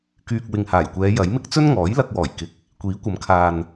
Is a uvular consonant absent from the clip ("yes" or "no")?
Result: yes